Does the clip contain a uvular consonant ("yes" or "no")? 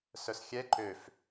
no